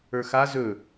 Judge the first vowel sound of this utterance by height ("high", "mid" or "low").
mid